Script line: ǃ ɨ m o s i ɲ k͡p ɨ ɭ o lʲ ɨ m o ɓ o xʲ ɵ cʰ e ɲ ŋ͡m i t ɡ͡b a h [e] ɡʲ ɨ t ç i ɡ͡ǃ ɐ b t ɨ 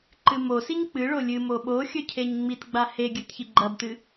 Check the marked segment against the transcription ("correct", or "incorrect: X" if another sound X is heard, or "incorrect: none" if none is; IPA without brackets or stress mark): correct